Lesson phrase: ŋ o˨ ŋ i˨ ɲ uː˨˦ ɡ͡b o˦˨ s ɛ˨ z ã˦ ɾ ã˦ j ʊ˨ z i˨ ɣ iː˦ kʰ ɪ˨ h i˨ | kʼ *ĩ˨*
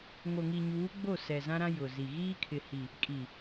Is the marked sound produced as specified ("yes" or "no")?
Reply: no